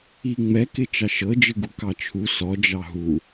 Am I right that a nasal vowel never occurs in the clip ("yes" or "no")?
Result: yes